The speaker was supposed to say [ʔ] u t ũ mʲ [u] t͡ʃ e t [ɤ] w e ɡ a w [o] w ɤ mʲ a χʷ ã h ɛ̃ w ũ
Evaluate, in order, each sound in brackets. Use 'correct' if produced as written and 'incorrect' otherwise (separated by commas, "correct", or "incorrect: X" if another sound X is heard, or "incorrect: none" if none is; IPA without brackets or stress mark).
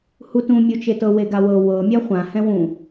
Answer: incorrect: h, correct, correct, incorrect: ɤ